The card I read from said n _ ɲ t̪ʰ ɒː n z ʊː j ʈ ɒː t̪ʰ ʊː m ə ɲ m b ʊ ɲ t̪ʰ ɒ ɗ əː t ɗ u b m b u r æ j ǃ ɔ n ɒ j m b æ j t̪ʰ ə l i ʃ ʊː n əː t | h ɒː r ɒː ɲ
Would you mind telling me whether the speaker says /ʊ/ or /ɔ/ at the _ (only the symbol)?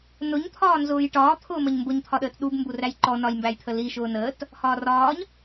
ʊ